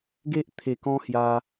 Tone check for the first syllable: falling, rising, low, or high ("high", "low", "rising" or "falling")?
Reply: high